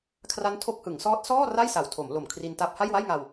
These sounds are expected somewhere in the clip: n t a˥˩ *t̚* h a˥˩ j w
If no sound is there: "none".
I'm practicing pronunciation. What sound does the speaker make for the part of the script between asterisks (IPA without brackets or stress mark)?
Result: p̚